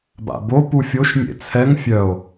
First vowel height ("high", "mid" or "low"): low